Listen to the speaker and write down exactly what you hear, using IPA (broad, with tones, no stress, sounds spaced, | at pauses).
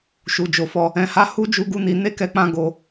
ʃ u˨ d͡ʒ o˨ f ɔ˧ | ɛ̃˧ h a˦ h u˦ d͡ʒ u˦ ɡ u˦ n i˧ n e˦ k ɛ˧ k͡p ã˧ ɡ o˧